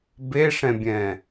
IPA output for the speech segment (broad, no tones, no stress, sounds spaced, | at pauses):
b e ʂ ɛ̃ bʲ ɛ̃